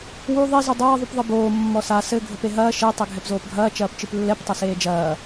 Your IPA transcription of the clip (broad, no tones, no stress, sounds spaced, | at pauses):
w u ðˤ i z u dˤ ɐː ðˤ u p ðˤ ɨ b oː mː ɔ s a s ɘ ɡʱ ɘ p e ɦ ɐː ʃ e tˤ ɘ ɡʱ ɛ p z oː p ɡʱ ɐː t͡ʃ ɐː p t͡ʃ ɨ p lː ɛ p tˤ ɐ s eː d͡ʒ ɐː